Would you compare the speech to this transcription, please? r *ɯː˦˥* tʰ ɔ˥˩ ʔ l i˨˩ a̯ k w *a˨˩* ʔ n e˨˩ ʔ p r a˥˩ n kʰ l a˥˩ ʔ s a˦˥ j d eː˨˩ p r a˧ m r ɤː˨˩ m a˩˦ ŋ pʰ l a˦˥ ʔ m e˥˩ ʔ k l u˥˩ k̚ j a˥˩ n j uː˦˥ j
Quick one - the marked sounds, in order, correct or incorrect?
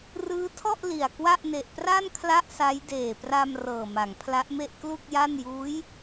correct, incorrect

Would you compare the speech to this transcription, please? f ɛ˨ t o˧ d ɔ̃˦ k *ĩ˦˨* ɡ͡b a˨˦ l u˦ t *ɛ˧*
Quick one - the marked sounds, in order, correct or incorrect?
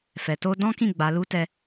correct, incorrect

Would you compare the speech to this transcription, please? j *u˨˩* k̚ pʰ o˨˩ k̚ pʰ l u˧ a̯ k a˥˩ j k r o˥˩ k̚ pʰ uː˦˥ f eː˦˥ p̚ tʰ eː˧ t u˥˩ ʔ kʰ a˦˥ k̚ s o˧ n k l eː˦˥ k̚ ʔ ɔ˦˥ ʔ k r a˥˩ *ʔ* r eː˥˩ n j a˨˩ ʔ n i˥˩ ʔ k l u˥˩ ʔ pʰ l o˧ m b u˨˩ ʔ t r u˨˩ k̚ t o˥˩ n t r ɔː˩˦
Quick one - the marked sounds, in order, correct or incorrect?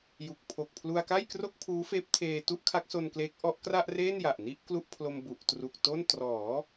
correct, correct

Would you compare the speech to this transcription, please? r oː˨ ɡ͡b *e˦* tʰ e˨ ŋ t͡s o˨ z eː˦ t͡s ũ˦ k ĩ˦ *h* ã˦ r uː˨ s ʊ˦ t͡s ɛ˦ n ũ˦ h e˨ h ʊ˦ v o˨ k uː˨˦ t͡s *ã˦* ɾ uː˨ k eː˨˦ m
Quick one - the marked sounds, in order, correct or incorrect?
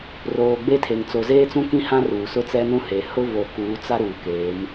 correct, correct, incorrect

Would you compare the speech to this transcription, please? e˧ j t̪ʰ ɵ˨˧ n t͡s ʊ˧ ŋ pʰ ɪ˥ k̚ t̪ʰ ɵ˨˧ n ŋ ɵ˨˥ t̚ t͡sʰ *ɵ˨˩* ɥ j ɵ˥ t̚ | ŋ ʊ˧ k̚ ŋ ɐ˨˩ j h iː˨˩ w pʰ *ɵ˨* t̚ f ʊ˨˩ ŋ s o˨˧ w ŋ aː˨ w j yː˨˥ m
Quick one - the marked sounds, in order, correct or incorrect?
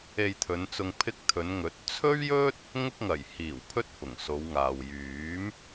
incorrect, incorrect

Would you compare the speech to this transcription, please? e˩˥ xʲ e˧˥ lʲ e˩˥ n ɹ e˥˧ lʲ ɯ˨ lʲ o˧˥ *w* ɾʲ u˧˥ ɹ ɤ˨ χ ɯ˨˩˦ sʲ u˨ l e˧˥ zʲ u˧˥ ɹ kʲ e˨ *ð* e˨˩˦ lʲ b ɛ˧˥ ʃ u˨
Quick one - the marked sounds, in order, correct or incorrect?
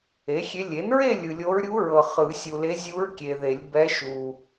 incorrect, correct

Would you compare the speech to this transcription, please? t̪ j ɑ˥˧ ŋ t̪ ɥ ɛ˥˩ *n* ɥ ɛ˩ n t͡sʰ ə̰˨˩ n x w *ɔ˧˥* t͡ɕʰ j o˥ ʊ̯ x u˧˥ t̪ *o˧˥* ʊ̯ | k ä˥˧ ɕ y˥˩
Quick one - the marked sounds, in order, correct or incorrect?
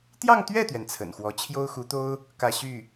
incorrect, correct, incorrect

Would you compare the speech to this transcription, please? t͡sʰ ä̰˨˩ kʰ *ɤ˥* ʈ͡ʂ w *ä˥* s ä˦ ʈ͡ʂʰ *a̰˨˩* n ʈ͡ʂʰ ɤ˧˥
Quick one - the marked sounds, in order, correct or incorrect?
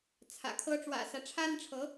correct, incorrect, incorrect

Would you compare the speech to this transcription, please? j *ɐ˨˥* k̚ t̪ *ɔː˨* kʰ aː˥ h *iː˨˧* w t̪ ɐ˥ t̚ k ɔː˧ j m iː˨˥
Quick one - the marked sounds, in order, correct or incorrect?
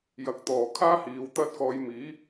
correct, correct, correct

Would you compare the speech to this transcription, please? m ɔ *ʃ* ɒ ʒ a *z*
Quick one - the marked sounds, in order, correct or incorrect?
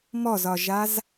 incorrect, correct

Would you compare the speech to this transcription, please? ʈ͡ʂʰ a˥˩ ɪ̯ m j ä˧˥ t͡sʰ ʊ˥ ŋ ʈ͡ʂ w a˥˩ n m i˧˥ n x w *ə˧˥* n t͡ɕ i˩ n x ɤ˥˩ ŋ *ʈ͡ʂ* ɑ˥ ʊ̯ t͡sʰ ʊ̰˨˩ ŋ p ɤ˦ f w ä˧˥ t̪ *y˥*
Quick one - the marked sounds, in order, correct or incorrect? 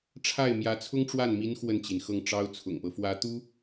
incorrect, correct, incorrect

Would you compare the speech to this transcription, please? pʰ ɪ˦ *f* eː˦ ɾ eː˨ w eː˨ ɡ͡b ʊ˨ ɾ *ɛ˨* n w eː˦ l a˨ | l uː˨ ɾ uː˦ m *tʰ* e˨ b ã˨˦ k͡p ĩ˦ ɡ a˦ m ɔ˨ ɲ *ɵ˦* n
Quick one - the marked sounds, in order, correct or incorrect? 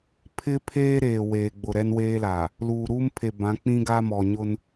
incorrect, incorrect, incorrect, incorrect

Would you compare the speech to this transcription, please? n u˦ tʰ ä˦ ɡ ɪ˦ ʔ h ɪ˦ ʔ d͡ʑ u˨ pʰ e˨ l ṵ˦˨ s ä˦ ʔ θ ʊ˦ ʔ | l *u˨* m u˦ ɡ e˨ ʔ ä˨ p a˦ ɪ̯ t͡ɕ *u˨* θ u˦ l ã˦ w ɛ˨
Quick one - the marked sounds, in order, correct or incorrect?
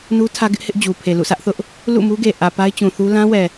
incorrect, incorrect

